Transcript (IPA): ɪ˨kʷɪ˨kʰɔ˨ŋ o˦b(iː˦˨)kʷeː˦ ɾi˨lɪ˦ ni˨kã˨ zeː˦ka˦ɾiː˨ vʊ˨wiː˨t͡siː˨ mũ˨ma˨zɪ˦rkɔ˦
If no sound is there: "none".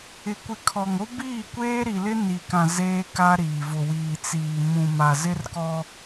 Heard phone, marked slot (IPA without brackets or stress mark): iː˦˨